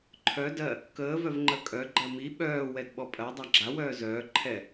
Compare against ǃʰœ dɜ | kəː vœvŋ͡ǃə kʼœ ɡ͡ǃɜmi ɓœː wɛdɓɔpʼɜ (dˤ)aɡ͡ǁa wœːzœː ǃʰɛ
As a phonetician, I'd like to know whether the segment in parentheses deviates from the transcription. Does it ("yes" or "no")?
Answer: no